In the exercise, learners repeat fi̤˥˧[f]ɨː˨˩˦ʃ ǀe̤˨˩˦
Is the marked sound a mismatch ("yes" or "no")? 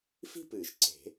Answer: yes